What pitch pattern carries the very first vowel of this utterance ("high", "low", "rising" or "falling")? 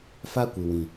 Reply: high